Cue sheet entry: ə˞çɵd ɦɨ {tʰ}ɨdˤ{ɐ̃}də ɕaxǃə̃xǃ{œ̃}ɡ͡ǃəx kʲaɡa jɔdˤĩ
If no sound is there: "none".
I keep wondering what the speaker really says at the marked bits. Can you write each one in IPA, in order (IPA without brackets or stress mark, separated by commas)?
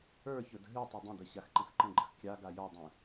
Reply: tˤ, ə̃, ə̃